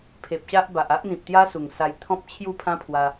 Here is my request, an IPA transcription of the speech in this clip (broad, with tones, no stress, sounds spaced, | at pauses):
pʰ e˨ p̚ ɕ a˦ ʔ b a˨ ʔ a˦ ʔ n̪ ĩ˨ p̚ t̪ j a˦ s u˨˩ ŋ s a˧ j t̪ʰ ɔ̃˦ p̚ t͡ɕʰ j u˥˧ pʰ ã˦ pʰ w a˧